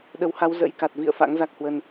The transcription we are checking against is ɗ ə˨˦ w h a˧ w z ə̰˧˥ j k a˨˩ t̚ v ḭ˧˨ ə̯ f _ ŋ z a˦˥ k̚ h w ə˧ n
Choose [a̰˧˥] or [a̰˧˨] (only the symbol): a̰˧˥